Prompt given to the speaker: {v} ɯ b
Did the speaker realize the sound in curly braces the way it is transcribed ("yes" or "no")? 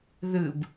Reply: no